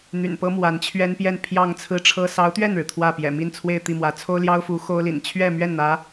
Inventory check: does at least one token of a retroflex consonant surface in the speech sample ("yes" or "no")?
yes